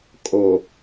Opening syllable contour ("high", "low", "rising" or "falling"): low